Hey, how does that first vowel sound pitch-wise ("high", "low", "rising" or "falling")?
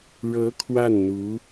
rising